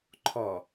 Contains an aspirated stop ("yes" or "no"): yes